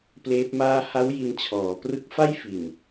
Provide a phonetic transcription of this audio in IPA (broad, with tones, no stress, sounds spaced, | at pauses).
p l eː˦˥ p̚ m aː˥˩ h a˦˥ w j i˧ n t͡ɕʰ ɔː˩˦ p r ɯ˦˥ k̚ f a˥˩ j f i˨˩ n